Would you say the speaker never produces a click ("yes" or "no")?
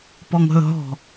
yes